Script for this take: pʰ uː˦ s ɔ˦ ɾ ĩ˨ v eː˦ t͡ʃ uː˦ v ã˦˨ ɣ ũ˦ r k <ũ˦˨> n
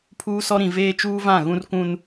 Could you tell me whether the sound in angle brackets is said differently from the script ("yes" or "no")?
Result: yes